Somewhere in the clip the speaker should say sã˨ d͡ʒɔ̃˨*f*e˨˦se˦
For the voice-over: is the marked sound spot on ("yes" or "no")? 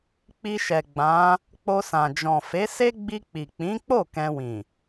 yes